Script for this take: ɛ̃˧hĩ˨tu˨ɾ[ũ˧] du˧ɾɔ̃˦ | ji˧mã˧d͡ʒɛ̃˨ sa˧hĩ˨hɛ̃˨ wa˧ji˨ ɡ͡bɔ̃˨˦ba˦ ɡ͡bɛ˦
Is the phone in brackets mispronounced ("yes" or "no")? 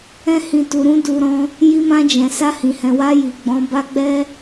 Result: no